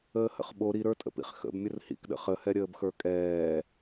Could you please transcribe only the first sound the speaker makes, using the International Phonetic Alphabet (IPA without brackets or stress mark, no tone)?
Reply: əː